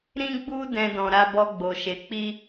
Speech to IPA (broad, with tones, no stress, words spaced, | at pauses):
ɾĩ˦ɡ͡bu˦ dɛ̃˦dɔ̃˧ ɾa˧bɔ˧ɡ͡bo˨ʃe˨ k͡pi˧